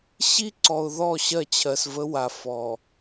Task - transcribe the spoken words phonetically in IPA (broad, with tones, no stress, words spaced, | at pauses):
ɕi˦ǀɔ˨ʊ̯ðɔ˦˨ ɕɜ˦˨t͡ɕʰɜ˨svə˦wa˨ fɔ˨